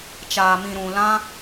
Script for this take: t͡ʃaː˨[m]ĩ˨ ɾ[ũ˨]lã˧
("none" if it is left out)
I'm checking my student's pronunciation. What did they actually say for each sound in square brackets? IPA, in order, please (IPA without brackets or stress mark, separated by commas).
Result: m, ũ˨